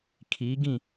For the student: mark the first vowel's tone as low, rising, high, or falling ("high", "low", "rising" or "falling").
rising